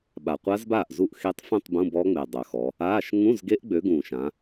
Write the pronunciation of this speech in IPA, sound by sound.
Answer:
ɓa˨˩qʷa˦˥zbaː˥˩ʔ zu˥˩ʔ xe˦˥tˤfũ˥˧tˤ bũ˧˥˧bɔ˦˥ŋ͡me˨˩ dˤœ˨˩xɔ˨˦ | aː˧˥˧ʃ ŋũ˧˥˧zɡe˦˥ʔɡ͡bø˨˦ɡũː˨˩ʃ ã˨˦

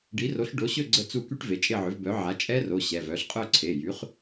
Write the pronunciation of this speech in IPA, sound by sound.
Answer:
ɖi˩˥ro˩˥ɬ ɖo˩˥ɕø˦˨ ɡ͡ǀə˦˨t͡su˦˨ ky˦˥ʈve˩˧˩t͡ʃʼe˦˨ʕø˩˥v bœ˩˥ʕa˩˥ t͡ʃʼɛ˦˥ro˩˧˩ ɕɛ˩˧˩vœ˩˥ɬ qʼœ˦˨ǀʰe˩˧˩jy˩˥χ

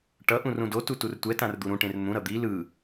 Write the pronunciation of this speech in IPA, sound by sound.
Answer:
ʈʌ ʔũrũdotu turtʷɛtãr d̪uɾũʈẽr n̪ũɾʌ d̪i lɯ

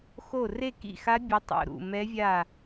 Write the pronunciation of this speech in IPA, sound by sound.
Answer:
xo˥˨ re˥˨kḭ˥˨xa˦˥ bʲɘ˦˥tˤo̰˥˨ ɾṵ˥˨ mɛ˦˥vʲa˥˨

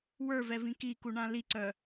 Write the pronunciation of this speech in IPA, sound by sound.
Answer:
wə˞vɛvĩ kikuɳã liǀœ

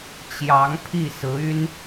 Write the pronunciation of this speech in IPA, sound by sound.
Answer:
t͡ɕjɑ˧˥ŋpʰi˥˩sɹ̩˧˥y˥n

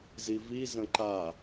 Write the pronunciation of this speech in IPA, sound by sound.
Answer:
zivi zə̃ǃa

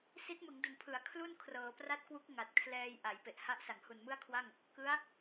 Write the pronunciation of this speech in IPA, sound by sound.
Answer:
si˦˥t̚ mɯ˩˦ŋdu˩˦npʰɯ˩˦a̯ kʰlu˥˩nkʰrɤː˩˦ pra˦˥t̚kwu˦˥k̚ ŋa˨˩t̚kʰlɛː˧j ʔa˩˦jpe˨˩ʔ ha˦˥ʔsa˩˦ŋ hu˨˩nmɯ˥˩a̯kʰwa˥˩ŋ | kɯ˦˥a̯

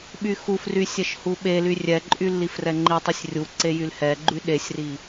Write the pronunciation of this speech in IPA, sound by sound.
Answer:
ɓyxufry sʲɛʃhuɓely rʲɛǃʼy lːifrɛŋ͡ǃitˤisʲ rʲuǀe jylhɛɡ͡ǃy ɗesʲri

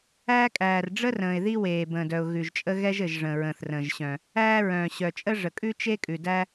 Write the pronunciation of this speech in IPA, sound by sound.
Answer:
æː˥kʼæː˩r ɖ͡ʐə˥rə̃ː˩ɪ̯ ði˥weː˩ bə̃ː˩dœ˩ʊ̯ ɣʉ˩ʒt͡ʃʼə˥ ɣɛ˥ʒɘ˩ʒ ʐə̃ː˩ɹə̃ː˩θrə̃ː˩ʒ ɕœ̃˩ | æː˥ɹœ̃ː˩ ɕœ˩t͡ʃʼə˥ ʐə˩kʼʉ˥t͡ʃe˥ kʼʉ˩dæ˥

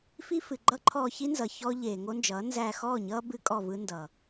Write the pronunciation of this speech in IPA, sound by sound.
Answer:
fi˦fɨ˨ɡ͡ǃʌ˦ǃʰɔː˧ çi˦nzʌ˨ çɔ˦ ʎeː˨ŋo˦nd͡ʒʌː˨˦ nzæ˧xɔː˦˨ɲʌː˦bɨ˧ kʼɔ˦˨vɯ˦ndʌː˨

